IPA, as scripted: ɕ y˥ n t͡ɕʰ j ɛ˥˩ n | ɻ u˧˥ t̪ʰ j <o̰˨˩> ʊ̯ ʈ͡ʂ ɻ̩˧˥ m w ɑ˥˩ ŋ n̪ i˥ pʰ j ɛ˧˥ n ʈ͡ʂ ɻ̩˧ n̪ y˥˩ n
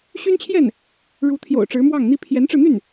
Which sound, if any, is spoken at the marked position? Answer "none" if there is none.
o̰˨˩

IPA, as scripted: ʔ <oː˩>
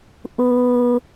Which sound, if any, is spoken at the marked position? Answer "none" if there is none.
uː˩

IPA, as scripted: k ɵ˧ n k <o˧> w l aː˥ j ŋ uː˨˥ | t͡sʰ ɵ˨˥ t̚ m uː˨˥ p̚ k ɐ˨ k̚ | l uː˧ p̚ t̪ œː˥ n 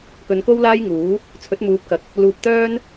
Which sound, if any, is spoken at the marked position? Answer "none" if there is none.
o˥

